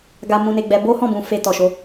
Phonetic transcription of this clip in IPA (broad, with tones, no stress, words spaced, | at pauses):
ɡa˧mũ˧ne˧ɡ͡bɛ˧ bo˦hɔ̃˦˨bũ˨ fe˧tɔ˨ʃo˨˦